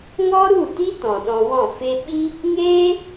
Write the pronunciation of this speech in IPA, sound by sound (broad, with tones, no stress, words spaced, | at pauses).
ŋɔ˦ɾu˦˨ti˦ tɔ̃˨ɗɔ̃˧wɔ̃˦˨ fe˧ ɓi˦ | ŋeː˦